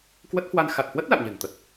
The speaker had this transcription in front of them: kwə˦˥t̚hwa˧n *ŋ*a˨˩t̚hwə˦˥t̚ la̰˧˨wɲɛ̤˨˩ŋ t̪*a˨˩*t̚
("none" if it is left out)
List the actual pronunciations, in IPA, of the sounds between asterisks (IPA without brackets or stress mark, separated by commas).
x, ə˨˩